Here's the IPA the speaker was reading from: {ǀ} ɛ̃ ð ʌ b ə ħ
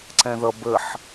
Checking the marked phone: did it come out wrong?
no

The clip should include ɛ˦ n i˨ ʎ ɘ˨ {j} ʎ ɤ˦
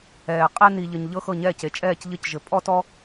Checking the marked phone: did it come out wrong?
yes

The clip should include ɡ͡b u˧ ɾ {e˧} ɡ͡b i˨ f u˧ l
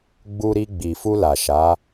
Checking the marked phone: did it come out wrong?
yes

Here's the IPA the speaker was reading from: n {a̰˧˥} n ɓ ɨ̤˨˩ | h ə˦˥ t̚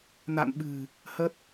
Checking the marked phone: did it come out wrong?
yes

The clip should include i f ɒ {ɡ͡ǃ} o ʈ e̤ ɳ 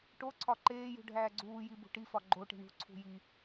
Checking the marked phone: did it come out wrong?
no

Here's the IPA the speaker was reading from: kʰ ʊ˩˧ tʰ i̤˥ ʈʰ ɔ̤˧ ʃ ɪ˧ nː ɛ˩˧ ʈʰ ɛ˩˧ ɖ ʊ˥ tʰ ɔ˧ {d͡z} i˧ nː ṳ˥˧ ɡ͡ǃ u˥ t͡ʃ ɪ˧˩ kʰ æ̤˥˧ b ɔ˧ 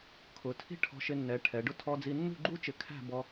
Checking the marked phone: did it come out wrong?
no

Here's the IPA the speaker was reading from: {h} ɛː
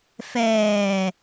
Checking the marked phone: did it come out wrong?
yes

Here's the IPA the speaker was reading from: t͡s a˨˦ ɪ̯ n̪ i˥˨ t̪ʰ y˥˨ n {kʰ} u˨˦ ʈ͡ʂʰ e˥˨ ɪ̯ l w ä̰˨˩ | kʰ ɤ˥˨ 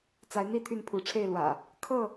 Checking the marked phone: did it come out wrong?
yes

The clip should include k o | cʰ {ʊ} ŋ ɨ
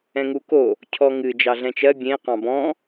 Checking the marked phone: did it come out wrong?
yes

